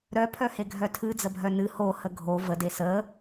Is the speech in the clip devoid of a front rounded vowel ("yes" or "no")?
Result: no